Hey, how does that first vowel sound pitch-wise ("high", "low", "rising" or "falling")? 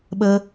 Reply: high